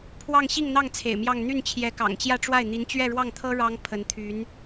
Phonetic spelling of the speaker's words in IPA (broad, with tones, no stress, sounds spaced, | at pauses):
pʰ w ɑ˥˧ ŋ ɕ i˥˧ ŋ n̪ ɑ˥˩ ŋ t͡sʰ ḛ˨˩ ɪ̯ m j ɑ˥˧ ŋ n̪ y˥˩ n t͡ɕʰ j ɛ˧˥ k ɑ̰˨˩ ŋ t͡ɕ j ä˥˧ ʈ͡ʂ w a˥˩ ɪ̯ n̪ i˧˥ n t͡ɕ ɥ ɛ˥˧ ɻ w ɑ˥˩ ŋ t̪ʰ ɤ˥ ɻ ɑ˥ ŋ pʰ ə˧˥ n t̪ʰ y˧˥ n